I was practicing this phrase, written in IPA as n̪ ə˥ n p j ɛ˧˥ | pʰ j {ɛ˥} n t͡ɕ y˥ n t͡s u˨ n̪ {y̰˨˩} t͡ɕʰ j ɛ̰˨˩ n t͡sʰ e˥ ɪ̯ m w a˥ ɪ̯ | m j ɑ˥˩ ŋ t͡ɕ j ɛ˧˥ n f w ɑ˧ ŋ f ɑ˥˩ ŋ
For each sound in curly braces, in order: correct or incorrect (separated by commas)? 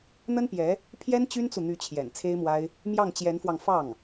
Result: correct, incorrect